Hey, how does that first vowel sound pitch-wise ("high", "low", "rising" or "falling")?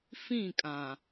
falling